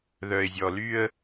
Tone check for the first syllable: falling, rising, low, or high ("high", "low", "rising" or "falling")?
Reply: low